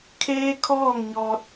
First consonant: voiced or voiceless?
voiceless